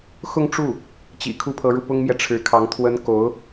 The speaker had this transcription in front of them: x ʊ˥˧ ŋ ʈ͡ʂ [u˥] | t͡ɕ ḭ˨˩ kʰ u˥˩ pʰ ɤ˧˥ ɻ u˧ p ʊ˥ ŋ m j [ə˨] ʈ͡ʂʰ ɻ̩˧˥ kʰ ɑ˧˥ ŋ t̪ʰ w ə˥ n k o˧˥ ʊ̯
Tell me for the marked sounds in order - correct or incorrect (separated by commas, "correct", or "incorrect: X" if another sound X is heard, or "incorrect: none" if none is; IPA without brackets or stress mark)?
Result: incorrect: u˥˩, incorrect: ɛ˨